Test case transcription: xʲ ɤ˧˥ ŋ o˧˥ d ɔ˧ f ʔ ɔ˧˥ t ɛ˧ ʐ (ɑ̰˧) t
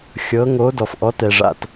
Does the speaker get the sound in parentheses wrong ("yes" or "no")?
yes